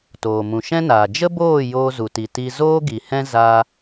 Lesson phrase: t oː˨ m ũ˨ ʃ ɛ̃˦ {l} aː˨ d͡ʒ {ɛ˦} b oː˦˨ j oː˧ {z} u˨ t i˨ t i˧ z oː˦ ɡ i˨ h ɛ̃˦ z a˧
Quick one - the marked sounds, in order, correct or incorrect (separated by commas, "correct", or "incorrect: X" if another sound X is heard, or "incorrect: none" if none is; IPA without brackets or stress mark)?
incorrect: n, incorrect: ə˦, correct